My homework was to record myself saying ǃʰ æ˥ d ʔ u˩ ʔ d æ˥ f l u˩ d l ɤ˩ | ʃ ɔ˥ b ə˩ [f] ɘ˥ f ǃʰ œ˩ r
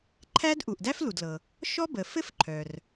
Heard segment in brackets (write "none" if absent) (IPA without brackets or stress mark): f